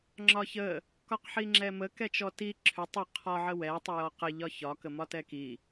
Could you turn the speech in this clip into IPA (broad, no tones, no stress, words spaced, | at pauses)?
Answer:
ŋ͡ǁɒçə | kɒqħiŋ͡ǁɛmə kɛt͡ʃɔti ǁʰʏ tˤʏ qʰɒ ʕəwɛ tˤijɔqə ʎɒçɒ kəmɒtɛki